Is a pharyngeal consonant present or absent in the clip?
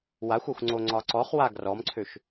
absent